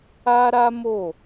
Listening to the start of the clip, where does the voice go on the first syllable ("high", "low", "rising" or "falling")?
high